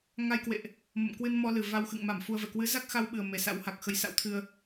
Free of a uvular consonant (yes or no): yes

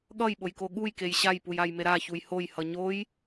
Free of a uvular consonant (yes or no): yes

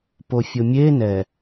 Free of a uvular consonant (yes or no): yes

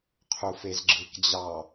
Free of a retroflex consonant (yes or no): yes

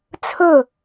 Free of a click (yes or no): yes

